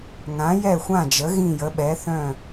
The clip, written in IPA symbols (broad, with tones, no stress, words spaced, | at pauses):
ŋã˩˧jɛ˧˩xʷã˧˩d͡ʒə˩˧ ɣĩ˧˩jə˩˧ ɓɛ˩˧θœ̃˧˩